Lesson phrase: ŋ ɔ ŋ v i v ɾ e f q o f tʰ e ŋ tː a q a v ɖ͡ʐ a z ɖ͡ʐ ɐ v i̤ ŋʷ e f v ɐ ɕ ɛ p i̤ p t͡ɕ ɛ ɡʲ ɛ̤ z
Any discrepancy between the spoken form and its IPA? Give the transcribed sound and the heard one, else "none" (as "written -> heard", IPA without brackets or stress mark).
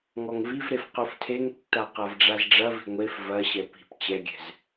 none